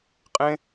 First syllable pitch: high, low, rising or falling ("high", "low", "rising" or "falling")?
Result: high